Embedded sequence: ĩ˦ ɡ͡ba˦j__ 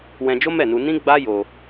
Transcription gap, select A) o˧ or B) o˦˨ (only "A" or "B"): A